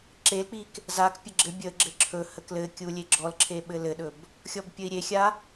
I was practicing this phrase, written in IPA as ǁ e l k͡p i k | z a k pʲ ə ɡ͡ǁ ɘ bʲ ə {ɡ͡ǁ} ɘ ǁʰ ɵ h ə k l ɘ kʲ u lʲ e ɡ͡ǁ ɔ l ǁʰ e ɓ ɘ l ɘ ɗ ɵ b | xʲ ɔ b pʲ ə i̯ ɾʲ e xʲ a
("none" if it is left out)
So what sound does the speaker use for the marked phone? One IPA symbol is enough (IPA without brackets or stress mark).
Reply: ɡ͡ǁ